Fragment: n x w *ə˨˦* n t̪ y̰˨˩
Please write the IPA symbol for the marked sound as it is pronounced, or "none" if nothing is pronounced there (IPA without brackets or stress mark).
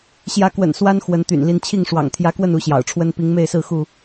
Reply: ə˨˦